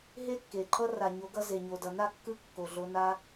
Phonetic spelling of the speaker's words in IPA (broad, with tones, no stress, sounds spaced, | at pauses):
ɦ e˦ kː e˨ ǃʰ ʌ˦ r a˨ ɲ o˨˦ ɡ ʌ˧ z e˨ ɲ o˨ d ʌ˨ n a˦˨ kː ɯ˦ kː o˨ ɮ o˧ n a˦